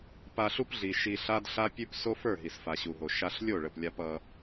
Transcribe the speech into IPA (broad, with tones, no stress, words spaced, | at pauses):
pa˧ɬu˦pɮi˨ ʃi˧ɬa˦dɬa˦ pʲʉ˦p so˦fə˞˦˨ ɦi˨sfa˨ɕu˨ɦo˨ ʃa˧ɬ lʲo˦˨ɭə˨plʲa˧p ʌ˧